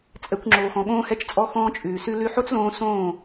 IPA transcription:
t͡sʼɛ˧kʷŋ͡ǁoː˨xɔ̃˨ ɠõː˧hɛ˧t͡ʃt͡sʼɔ˧ xɔ̃ː˦t͡ʃʼʉː˨sʉ˦ lʉ˧ħo˦t͡slõː˧ sõː˦˨

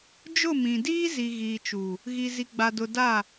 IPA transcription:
d͡ʒʊ˦˨mĩ˨diː˦zi˨ ɣiː˨t͡ʃuː˨ | ɣi˨zi˨ɡ͡ba˨dʊ˨ daː˦˨

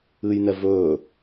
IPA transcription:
ɨjnɛ vɵː

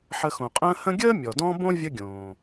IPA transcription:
ħə˨xõ˩qʼə̃ː˦ hə̃˦ɡʲəː˥ mʲɔ˩dɔ̃˥ bõ˥ vʲə˦ɡʲõː˩

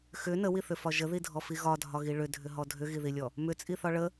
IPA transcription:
xʏ nəwiθʏfɒ ʒəðidʱɔfi ɣɒdʱɒɣi ɭʏdʱʏɦɔ dʱʏɣiðilʲɔ | mʏt͡sʼiθɒ ɭə

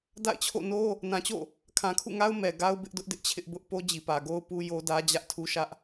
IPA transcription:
da̰˦˨ɪ̯t͡ɕʰo̰˦˨no˦ | nã˨t͡ɕo̰˦˨ | kʰã˨kʰṵ˦˨ŋa˦ʊ̯ mɛ˨ɡa˦ʊ̯ bɪ˦ʔdʊ˦ʔ dɪ˦ʔt͡ɕʰɪ˦ʔbʊ˦ʔ po˦d͡ʑi˨pä˨ ɡo˦ʊ̯ pu˦jo˦dä˦ d͡ʑä˦ʔtʰu˦ʃä˦ʔ

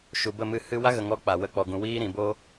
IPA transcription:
ʃu˨bə˦˨ mɨ˦˨hɨ˦ wa˦ɣə˨ŋɔ˧ k͡pa˨wə˧ k͡pɔ˨ɡũ˨wiː˦ɾĩ˨ bo˦

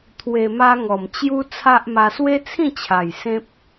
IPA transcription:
t̪ʰwe˧ma˦ ŋɔ˨˩m t͡ɕju˦ t͡sʰa˦ʔma˧ swe˦t͡sʰĩ˥˧t͡ɕʰa˨˩j sẽ˦p̚

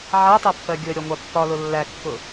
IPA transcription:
ʕætˤæpːɜ ɡʲʊə̯ɾʲɒ ŋʷɑpːɒlʊ lːækːʊ

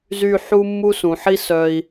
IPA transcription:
zy˥˧ħu˥ mːu˥sũ˩˧ħi˥sœ˧i̯

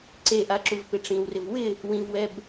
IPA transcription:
ǀeʔaǁuvpɪ ʈ͡ʂĩwrɪv wɪ | wĩvwɛb

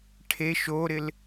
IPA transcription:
ʈʰeʃ oɾɪl

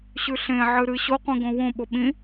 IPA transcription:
ɕʉɬẽ ʕɨɾɨ ɕoqʷĩ ɡõwõɓo ɓĩ

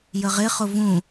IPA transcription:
jəʁɪχʊ vũ

